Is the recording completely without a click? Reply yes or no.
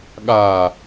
yes